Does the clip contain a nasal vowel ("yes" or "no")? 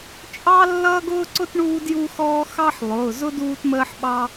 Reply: no